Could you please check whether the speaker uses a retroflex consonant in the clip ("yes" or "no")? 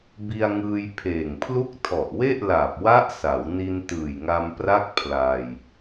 no